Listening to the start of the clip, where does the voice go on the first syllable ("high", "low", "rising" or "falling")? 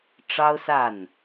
high